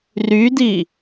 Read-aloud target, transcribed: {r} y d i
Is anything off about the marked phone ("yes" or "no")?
no